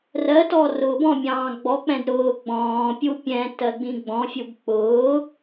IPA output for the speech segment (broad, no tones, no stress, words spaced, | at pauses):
rɜtɔ rʊːbɔ̃mʲɑ̃ː ɡ͡bɔk͡pɛ̃d ɾʊː ɡ͡bɔ̃ːpʲu pʲɛ̃ tɜɡ͡bĩɡ͡bɔ̃fʲub k͡pʊː